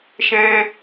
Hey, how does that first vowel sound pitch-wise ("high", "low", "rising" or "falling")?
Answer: high